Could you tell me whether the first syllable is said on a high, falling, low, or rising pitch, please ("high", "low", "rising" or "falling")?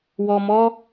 low